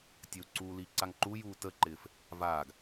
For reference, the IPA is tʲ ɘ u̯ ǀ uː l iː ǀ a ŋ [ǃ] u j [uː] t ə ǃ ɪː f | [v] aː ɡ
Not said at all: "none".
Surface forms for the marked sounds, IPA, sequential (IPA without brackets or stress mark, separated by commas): ǃ, uː, v